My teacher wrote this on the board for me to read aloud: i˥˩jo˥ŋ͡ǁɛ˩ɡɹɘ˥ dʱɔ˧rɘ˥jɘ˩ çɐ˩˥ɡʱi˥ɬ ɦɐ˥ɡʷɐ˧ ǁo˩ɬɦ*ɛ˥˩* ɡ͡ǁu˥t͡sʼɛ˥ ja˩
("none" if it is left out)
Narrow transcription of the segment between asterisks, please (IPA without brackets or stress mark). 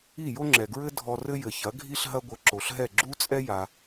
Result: ɛ˥˩